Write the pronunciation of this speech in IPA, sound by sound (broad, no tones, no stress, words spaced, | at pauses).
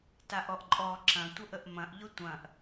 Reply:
taʔɔʔǃʼɔ ǁɐ̃ tʷəʔəʔmɐ̃ʔ ʎʊtʷɐ̃ʔ